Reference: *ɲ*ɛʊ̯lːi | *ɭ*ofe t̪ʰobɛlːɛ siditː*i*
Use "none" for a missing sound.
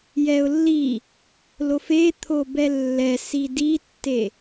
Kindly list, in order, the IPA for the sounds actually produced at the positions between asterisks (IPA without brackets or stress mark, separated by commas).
j, l, e